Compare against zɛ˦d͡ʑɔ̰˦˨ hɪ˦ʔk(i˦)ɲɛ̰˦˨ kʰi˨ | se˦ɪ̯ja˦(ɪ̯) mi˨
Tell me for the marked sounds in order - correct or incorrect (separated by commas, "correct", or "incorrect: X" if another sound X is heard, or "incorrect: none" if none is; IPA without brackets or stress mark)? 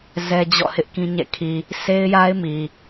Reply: incorrect: ĩ˦, correct